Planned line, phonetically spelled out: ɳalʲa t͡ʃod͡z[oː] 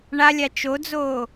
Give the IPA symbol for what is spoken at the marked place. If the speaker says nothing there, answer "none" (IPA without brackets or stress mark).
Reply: oː